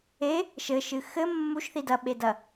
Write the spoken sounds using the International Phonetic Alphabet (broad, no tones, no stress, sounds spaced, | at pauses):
e | ʃ ɘ ʃ ɨ x ɘ mː u ʃ θ i d ɐ ɓ e d ɐ